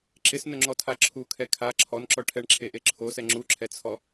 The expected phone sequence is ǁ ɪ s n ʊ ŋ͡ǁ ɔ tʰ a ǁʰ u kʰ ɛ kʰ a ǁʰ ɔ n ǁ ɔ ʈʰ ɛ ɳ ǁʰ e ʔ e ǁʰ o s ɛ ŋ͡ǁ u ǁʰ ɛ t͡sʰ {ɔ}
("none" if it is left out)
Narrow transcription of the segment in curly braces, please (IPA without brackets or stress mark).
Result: ɔ